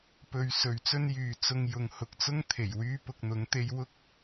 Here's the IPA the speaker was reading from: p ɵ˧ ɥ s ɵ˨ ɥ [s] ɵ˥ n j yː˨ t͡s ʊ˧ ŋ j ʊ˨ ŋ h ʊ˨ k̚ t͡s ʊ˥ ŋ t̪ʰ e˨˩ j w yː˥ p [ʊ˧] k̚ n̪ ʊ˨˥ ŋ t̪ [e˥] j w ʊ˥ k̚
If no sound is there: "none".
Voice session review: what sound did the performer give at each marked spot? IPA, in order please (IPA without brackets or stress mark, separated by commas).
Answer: t͡s, ʊ˧, e˥